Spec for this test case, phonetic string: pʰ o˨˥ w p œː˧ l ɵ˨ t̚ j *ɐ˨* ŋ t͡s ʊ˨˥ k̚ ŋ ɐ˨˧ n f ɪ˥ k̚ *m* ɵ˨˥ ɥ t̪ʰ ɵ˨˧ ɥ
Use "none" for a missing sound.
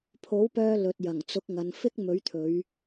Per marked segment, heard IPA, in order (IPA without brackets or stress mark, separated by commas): ɐ˨˩, m